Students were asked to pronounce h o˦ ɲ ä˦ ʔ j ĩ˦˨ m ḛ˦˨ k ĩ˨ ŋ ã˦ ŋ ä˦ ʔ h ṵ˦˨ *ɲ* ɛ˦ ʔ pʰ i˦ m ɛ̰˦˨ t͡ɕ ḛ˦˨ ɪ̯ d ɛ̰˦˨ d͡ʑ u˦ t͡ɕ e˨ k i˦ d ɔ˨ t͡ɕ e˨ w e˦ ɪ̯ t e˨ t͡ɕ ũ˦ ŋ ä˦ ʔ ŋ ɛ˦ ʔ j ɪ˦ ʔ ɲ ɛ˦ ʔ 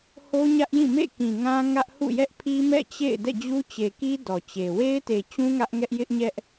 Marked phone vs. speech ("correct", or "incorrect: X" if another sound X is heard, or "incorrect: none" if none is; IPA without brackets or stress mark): incorrect: j